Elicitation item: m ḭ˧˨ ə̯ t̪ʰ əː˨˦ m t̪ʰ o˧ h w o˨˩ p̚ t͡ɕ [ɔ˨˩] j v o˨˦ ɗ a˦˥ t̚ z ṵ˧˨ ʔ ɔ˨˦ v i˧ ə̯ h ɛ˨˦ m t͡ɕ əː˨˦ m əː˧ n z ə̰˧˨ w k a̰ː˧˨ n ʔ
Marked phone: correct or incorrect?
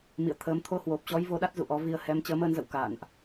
incorrect